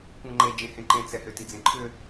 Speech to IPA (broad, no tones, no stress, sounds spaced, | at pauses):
kʷ ɛ̃ ŋ͡ǃ e d͡ʒ ẽ h ẽ ǃ ẽ t͡s ɛ h ʏ t i d͡z ẽ ǃʰ ʏ